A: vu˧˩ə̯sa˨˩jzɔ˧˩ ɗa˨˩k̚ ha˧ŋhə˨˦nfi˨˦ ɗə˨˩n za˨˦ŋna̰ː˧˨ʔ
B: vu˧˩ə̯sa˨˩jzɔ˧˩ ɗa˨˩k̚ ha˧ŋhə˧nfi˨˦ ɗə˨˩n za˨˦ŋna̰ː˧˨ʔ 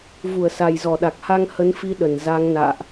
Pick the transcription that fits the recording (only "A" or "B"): A